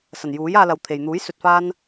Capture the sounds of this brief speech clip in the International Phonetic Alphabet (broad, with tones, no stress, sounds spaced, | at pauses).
s ɐ˨˩ n j uː˨˥ j aː˧ l ɐ˨˧ w t̪ʰ e˨ j n̪ uː˨˥ j s ɵ˨ t̚ f aː˧ n